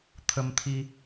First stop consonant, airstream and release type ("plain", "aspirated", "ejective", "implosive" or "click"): aspirated